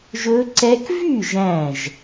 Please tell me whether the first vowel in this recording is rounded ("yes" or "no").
yes